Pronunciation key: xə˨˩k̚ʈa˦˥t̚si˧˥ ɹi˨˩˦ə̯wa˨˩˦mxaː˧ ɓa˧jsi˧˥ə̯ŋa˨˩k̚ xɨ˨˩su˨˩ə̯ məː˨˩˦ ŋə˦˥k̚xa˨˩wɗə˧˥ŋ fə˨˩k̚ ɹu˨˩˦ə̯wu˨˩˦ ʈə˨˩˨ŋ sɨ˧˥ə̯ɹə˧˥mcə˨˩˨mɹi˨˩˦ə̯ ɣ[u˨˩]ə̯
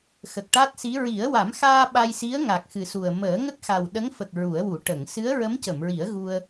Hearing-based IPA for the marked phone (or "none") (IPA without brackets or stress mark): u˧